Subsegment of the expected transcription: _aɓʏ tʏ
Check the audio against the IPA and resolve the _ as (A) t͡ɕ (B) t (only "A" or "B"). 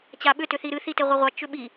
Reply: A